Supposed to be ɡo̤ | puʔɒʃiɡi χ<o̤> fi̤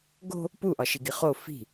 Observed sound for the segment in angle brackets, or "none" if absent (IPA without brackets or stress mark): o